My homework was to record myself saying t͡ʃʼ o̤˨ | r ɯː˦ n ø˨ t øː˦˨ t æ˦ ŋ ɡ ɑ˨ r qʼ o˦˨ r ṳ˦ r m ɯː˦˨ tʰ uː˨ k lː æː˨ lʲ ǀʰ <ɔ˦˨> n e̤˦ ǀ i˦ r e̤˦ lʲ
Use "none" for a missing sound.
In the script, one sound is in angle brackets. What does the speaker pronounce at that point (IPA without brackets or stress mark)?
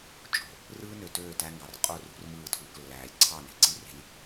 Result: ɑ˦˨